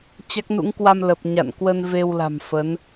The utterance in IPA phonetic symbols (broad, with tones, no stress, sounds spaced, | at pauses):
t͡ɕ a˦˥ k̚ n ṵ˧˥ ŋ k w a˧ m l ə˨˩ p̚ ɲ a̰˧˨ n k w ə˧ n v e˧ w l a̤˨˩ m f ə˨˦ n